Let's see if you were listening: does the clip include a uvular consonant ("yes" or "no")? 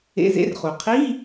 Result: yes